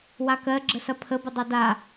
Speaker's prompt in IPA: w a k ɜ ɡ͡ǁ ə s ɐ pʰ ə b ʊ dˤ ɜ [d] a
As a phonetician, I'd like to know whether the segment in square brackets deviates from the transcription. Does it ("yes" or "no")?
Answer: no